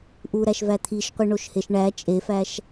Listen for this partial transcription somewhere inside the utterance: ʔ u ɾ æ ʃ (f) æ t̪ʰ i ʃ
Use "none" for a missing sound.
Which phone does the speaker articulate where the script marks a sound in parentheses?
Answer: v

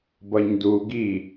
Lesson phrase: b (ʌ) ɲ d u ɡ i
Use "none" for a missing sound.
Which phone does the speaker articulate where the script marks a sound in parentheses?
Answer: ʌ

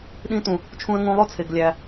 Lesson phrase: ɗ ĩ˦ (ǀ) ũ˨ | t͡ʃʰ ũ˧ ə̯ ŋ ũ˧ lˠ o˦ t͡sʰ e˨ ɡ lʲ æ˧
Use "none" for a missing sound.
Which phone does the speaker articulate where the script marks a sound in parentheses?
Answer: t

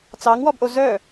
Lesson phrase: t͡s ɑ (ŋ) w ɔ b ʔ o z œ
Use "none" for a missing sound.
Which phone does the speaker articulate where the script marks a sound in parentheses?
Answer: ŋ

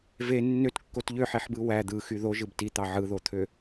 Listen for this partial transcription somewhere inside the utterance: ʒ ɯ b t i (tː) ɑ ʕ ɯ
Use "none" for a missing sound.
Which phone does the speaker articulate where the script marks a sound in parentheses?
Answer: t̪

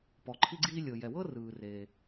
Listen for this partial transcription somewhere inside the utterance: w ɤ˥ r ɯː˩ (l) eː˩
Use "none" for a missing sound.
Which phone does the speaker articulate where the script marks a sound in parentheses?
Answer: r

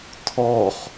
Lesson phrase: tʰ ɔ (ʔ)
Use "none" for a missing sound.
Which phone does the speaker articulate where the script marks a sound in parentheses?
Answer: χ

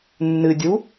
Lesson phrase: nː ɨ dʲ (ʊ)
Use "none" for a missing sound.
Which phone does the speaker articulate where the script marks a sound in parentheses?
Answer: u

